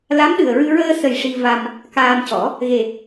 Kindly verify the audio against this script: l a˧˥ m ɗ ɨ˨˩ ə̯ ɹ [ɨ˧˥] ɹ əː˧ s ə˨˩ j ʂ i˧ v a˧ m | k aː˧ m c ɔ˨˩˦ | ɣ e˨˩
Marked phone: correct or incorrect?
incorrect